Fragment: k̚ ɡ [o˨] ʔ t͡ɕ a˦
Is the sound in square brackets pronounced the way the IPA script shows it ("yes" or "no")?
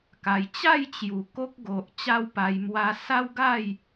yes